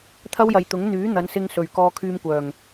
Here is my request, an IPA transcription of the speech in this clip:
t̪ʰɐ˥wjɐ˨jt̪ʊ˨˥ŋ n̪yː˨˥n̪ɐ˨˧n sɪ˥ŋsɵ˨ɥ kɔː˧kʰyː˧mkʷœː˨˩ŋ

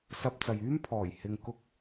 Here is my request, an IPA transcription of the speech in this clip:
sɐ˧p̚ t͡sɐ˨jyː˥m pʰɔː˨˩j hɪ˨ŋkʊ˧k̚

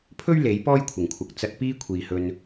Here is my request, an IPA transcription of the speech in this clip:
pʰɵ˥ɥ le˨˥j pɔː˥jkʷʰɪ˨˩ŋ kʷʰɐ˨k̚ t͡sɐ˧t̚ piː˥kʷʰiː˨hɵ˧n

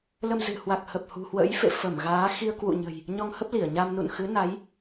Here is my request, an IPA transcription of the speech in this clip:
lə˧mzɨ̤˨˩ hwa˨˩k̚hə˨˩p̚hṳ˨˩hwə̰˧˥j fḛ˧˨fə˧˩mɣaː˨˦ xi˧ə̯kwṵ˧˨ɲə̤˨˩j | ɲɔ˧ŋhə˦˥p̚ li˧˩ə̯ɲa˧mnṵ˧˨n xɨ˨˦na˨˦j

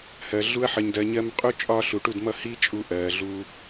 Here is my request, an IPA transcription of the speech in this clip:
hɜ˨ ɮu˧ɐ̯ħʌ˨ɲdɜ˨ɲɜ˧m qʼu˧ t͡ʃʼɒː˧ ɬu˨ʈu˦˨dmʌ˦ hi˦t͡ʃʼu˧ʔɜː˨ ɮuː˧

